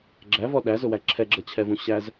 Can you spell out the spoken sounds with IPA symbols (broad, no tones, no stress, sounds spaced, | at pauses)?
ɡ͡ǁ æ v ɔ ɗ æ z ʊ w æ ǁʰ ɛ ɡ͡ǁ ʌ t͡ɕʰ ɛ v ũ ɕ æ z